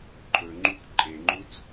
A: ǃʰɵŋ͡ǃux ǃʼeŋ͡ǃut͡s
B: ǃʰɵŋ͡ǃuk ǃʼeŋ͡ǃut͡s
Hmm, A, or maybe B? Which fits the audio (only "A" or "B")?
B